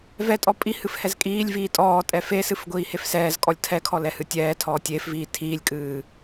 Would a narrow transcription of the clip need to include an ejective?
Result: yes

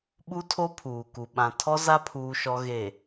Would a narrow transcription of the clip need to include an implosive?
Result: yes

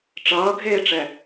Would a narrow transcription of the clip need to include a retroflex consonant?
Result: yes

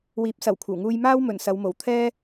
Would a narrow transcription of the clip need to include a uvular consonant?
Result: no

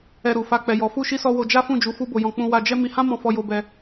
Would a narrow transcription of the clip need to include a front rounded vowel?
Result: no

